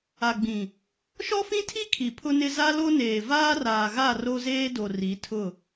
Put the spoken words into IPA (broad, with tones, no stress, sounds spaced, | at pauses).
a˨ ɡ͡b ĩ˨ | ʃ ɔ˦ f ĩ˦ tʰ i˦ kʰ i˨ pʰ ʊ˦ n ɪ˦ z a˦ l o˦ n eː˨ v aː˦ r aː˨ ɣ a˦˨ r o˦ z eː˦ d o˨ r i˨˦ tʰ ʊ˦˨